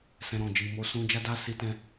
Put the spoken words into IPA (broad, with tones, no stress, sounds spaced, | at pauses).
s ɛ̃˧ ɾ ɔ̃˨ d͡ʒ i˨ m o˧ s ũ˦ d͡ʒ a˦ d a˦ s i˧ t ɛ̃˧